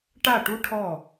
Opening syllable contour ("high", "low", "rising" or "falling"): falling